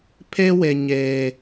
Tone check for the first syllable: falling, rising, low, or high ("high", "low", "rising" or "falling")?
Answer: high